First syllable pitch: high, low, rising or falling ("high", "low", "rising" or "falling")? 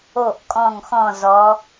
falling